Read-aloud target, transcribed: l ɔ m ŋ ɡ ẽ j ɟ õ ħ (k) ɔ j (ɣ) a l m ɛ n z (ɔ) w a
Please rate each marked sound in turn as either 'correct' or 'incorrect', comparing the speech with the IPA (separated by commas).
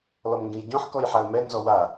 correct, incorrect, correct